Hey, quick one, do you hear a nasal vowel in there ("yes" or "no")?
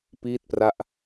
no